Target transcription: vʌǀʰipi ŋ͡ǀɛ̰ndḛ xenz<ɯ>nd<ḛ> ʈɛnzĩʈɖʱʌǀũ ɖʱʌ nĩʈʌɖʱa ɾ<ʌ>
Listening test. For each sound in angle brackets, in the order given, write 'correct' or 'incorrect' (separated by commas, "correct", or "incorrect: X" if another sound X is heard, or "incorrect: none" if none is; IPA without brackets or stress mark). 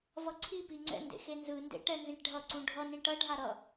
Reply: correct, correct, correct